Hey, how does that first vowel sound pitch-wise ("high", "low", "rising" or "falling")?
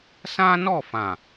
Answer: high